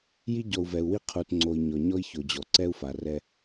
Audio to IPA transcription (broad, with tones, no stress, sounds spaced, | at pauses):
j i˦ ɟ ɔ˨ u̯ v ɛ˨ u̯ w i˦ qʰ u˨ t ŋ͡ǀ o˨ i̯ ɲ ɔ˨ ɲ ɔ˦ i̯ ç o˨ d͡ʑ ɔ˨ ǀ ɛ˦ u̯ f a˨ r ɛ˦